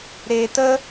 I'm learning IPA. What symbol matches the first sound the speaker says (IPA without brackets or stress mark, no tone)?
ɾ